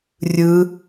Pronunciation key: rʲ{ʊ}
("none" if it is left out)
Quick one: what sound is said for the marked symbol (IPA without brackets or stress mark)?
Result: ɯ